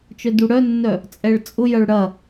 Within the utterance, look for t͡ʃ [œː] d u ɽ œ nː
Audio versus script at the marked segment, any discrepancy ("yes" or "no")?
yes